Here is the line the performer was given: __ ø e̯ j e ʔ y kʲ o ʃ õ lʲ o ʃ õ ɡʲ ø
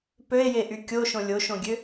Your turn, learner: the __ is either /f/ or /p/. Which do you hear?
p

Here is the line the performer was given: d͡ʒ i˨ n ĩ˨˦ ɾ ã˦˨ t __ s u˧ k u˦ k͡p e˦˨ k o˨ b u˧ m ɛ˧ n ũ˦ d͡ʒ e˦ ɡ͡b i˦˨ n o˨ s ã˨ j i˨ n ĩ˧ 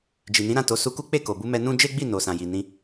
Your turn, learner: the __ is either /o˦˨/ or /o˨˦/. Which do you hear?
o˨˦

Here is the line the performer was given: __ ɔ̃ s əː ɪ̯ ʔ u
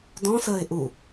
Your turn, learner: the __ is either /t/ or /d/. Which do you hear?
d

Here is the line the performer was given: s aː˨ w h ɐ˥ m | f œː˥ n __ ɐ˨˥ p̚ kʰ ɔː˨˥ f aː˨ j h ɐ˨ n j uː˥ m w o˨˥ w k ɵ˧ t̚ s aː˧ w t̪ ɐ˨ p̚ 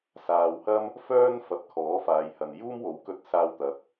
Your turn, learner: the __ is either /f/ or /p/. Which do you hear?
f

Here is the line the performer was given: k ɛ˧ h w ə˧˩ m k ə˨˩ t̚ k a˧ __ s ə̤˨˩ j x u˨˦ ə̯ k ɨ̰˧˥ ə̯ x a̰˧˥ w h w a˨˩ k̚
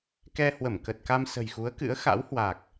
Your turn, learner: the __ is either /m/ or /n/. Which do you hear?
m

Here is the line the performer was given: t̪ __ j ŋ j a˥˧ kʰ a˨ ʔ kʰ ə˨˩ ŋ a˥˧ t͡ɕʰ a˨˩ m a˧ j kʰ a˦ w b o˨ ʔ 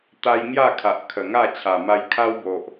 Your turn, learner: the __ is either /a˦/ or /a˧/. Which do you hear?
a˦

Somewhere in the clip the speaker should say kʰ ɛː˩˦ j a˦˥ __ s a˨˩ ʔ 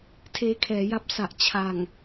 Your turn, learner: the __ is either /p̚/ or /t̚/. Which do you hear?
p̚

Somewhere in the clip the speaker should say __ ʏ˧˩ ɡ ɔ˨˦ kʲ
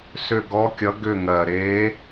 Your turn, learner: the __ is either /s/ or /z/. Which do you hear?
s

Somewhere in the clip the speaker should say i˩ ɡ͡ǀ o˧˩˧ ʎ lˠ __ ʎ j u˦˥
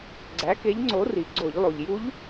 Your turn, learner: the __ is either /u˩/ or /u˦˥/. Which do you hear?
u˩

